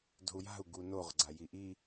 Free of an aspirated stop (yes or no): yes